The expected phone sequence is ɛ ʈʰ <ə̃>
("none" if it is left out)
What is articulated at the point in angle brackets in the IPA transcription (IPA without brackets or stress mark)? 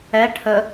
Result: ə